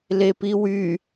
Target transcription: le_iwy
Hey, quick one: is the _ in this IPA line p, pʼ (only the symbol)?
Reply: p